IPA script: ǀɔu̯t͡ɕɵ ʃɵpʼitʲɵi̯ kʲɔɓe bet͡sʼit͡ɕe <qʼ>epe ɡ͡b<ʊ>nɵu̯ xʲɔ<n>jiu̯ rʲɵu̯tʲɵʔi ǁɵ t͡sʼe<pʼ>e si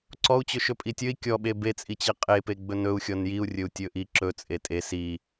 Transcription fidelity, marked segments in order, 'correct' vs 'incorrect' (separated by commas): correct, incorrect, correct, incorrect